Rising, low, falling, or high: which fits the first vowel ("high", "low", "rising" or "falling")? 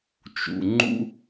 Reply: low